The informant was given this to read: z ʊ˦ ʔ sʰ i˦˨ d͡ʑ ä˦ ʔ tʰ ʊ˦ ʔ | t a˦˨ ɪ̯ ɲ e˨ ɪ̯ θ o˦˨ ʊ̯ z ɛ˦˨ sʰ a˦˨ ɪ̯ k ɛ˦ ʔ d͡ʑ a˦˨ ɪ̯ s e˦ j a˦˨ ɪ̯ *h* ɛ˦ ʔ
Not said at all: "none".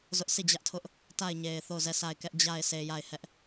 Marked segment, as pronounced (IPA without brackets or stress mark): h